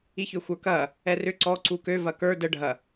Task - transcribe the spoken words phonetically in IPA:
i ç ʏ xʷ ə˞ k ɐ | ɛ r ʏ ǀ ɔ ǀ u k ø v ɐ k ə˞ d ə ɖʱ ɐ

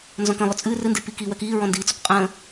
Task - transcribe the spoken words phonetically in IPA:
n z ɔ̃ k ə̃ lˠ ʊ t͡sʼ ɨː r ɨ n d e p i k iː w ɜ k iː ɹ ɔ̃ n d iː t͡s ʊ k qʼ ə̃ː

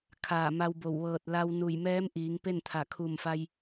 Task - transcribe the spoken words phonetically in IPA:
kʰ aː˧˩ m a˧ w b o˧˩ w ʋ ɤː˧˩ t̚ l a˧ w n u˧˩ j m ɛː˧˥ m ʔ iː˩˧ ŋ p e˥˨ n t̪ʰ a˧˩ kʰ u˧˩ m f a˧ j

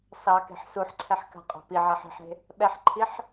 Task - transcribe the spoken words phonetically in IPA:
s ɑ k e̤ ħ s u ħ ǀʰ ɛ ħ k a̤ qʼ ɑ̤ p i ʕ a ħ e̤ ħ e̤ | ɓ ɛ ħ ǃʰ i ħ

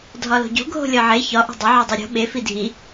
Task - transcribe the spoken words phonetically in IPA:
dʱ ɒ l o̤ ɟ o̤ ɡʱ o̤ lʲ ɒ ʕ e ç ɒ ʔ o̤ dˤ e ʕ e dˤ o ɾʲ o̤ ɓ e f i dʱ i

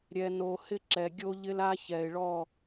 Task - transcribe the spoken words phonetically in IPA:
ɾʲ ɛ˨ n o˨ h ɪ˦ ǁ ɛ˨ ɡʲ o˦ ʎ ɪ˦ l a˦ ç ɛ˨ ɪ̯ ɭ ɔ˦˨

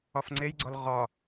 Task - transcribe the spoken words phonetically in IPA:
ɒ f ŋ͡ǀ e j ɡ͡ǀ ɒ l ʁ ɒ

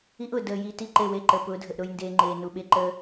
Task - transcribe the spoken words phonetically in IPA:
i˦ ʔ ʊː˨ d əː˨ j i˨ t i˦˨ ǃ e˦˨ w e˦˨ ǃ əː˨ p ʊː˨˦ dʱ ə˨ ʔ ɾ ʊ˦ j n d eː˦ ŋ͡ǃ eː˨ n u˨ ɓ e˦ ǃ əː˦

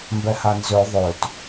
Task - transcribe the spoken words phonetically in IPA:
m b ɛ h a n z ø ðˤ ø t

